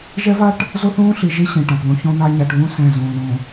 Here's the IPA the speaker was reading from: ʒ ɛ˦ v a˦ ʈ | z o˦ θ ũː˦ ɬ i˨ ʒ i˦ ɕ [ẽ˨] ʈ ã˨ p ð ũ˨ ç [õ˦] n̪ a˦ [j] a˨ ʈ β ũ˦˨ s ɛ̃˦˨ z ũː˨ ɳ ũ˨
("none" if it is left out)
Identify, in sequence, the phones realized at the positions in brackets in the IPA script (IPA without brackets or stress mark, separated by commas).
ĩ˨, õ˦, ɲ